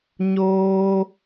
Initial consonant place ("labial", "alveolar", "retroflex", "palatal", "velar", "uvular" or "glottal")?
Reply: palatal